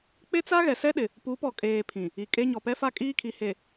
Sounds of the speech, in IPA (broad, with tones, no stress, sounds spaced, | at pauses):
k͡p e˦ t͡s a˦ ɣ ɛ˨ s ɛ˦ ɗ ɪ˨ | p u˨˦ p ɔ˨ kʼ eː˨ pʰ ĩ˨ | i˨ kʼ e˦ ɲ ɔ˨ p ɛ˦ f a˦ kʼ iː˦ kʰ i˨ h e˨